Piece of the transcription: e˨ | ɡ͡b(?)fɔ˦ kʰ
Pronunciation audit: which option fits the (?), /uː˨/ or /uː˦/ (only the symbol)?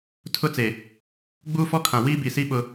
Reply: uː˦